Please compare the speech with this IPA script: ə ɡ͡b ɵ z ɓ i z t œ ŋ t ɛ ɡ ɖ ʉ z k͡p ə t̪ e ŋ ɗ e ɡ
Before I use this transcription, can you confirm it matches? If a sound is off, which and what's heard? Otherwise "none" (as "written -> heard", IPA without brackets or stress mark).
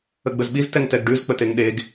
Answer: œ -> ɛ